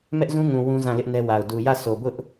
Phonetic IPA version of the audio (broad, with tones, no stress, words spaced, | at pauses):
mɛ˦ʔzũ˦ŋũ˨ wũ˦zã˦˨ lɪ˦ʔnɛ˦wa˨ʊ̯ du˨jä˦˨so˨bʊ˦ʔ